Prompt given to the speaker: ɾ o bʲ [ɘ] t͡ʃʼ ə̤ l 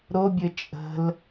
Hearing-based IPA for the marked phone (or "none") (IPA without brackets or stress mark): ɘ